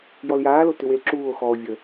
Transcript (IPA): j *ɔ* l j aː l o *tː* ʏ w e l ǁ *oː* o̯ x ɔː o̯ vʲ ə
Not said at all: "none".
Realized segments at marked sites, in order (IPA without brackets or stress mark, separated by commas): ɔ, t, uː